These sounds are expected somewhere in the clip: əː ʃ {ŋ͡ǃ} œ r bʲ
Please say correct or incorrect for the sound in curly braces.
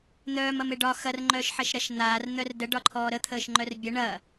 correct